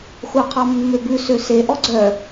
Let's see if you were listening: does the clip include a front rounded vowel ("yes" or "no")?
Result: yes